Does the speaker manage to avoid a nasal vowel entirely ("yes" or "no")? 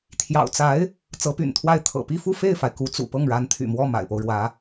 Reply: yes